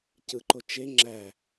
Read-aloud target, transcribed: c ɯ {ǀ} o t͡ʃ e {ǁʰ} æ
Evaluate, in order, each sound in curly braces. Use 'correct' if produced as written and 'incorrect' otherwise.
incorrect: ǃ, incorrect: ŋ͡ǁ

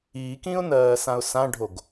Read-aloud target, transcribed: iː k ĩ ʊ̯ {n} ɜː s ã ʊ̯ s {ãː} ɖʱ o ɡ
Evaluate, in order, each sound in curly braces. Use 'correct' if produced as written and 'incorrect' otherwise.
correct, incorrect: ã

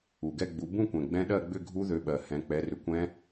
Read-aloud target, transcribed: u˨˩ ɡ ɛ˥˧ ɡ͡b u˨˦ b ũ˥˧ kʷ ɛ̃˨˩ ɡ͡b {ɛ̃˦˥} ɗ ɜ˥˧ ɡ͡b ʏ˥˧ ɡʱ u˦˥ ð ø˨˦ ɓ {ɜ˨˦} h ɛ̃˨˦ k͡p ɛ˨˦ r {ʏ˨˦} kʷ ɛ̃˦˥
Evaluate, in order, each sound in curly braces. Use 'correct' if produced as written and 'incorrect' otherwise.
correct, incorrect: ɜ˨˩, correct

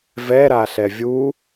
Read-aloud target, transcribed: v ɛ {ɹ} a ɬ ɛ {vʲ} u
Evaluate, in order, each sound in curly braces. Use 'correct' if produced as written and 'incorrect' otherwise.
incorrect: ɾ, correct

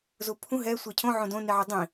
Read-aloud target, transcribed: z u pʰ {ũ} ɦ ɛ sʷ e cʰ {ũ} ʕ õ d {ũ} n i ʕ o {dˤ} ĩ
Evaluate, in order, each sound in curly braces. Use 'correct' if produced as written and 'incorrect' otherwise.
correct, incorrect: õ, incorrect: õ, correct

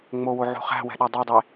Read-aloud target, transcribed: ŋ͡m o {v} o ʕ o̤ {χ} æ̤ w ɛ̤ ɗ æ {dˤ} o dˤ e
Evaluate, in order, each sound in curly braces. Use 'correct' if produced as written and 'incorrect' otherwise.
incorrect: w, correct, correct

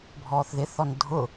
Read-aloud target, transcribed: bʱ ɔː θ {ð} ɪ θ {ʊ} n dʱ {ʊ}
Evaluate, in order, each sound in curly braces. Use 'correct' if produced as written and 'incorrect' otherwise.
correct, incorrect: ɔ, correct

